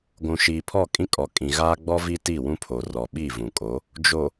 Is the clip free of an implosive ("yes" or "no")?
no